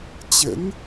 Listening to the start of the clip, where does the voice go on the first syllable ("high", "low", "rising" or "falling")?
rising